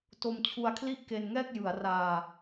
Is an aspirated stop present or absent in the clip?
present